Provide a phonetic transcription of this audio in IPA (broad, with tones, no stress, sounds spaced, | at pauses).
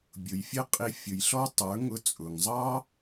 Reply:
bʲ ʊ˨ j fʲ ə˦ qʼ i˧ fʲ ʊ˨ j ɬ ɔ˦ tˤ ə˞˨˦ ŋ ʊ˧ t͡sʼ ʊ˨ ŋ zˤ ɑ˦